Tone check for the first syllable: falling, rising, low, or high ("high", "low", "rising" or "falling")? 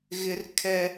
high